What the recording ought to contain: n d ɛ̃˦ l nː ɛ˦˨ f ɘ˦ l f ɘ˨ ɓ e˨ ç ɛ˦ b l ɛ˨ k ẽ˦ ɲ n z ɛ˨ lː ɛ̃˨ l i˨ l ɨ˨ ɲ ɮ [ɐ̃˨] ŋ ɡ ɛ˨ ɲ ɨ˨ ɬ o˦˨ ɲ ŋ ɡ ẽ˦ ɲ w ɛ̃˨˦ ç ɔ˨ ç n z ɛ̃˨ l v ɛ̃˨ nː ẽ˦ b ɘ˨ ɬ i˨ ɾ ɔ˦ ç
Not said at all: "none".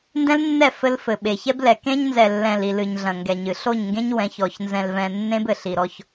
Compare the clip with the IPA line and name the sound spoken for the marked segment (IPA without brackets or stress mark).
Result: ɐ̃˨